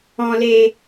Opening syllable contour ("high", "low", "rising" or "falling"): low